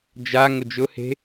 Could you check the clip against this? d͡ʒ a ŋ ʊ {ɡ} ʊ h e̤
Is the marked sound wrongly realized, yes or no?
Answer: yes